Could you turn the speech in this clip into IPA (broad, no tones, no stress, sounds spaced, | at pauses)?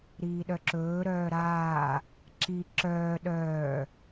ɾ iː ɗ œ ǁ ɵː ɾ œː ɾ aː | ǁ i ǁ œː ɗ œː